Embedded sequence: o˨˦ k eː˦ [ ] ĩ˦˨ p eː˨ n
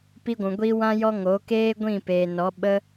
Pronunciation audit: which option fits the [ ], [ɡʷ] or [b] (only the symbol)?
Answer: ɡʷ